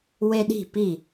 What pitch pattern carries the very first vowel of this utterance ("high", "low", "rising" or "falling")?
high